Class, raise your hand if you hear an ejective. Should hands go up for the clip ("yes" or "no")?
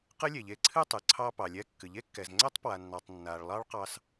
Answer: no